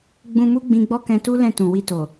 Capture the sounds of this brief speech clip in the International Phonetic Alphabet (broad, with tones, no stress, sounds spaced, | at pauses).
ɡ͡b ũ˧ m u˦ ɡ͡b ĩ˧ ɡ͡b ɔ˦ k ɛ̃˧ t u˦ l ɛ̃˦˨ t ũ˨ w i˧ t o˨